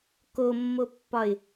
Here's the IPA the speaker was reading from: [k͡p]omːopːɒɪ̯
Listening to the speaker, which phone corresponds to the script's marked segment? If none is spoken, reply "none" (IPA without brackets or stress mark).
k